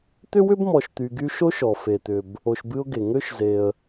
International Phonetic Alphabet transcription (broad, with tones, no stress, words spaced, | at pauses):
t̪ʏ˥wʏ˥bmɔ˨ʃt̪y˨ ɡy˦ʃo˥ʃɔ˩ fe˩t̪ʏ˩b | o˨ʃbɨ˦ʊ̯ɡe˩ ŋø˥ʃze˩ə̯